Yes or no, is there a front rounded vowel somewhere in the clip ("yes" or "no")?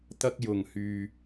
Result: yes